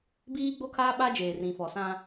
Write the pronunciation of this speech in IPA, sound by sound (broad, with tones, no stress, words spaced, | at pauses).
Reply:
biː˦ɡ͡bo˦kʰaː˦ ɓa˦ d͡ʒeː˨rĩ˨fɔ˨ sã˦